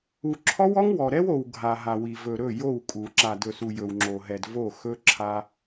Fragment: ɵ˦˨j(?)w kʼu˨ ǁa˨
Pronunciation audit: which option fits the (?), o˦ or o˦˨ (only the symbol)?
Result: o˦˨